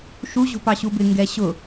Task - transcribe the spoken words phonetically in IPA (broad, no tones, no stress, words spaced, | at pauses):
ʃuʑṳpɑɕu bɪŋɡɛ ɕʊ